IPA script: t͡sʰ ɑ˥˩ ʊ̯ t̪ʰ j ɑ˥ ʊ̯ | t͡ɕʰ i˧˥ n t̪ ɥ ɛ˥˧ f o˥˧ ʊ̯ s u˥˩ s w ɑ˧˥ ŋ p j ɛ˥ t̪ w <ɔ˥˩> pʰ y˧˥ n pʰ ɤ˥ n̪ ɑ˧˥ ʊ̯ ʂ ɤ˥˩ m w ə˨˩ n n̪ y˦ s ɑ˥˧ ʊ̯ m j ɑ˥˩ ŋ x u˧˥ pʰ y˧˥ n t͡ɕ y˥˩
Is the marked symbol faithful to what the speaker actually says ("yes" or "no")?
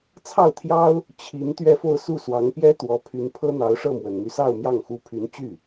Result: no